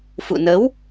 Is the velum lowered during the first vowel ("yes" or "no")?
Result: no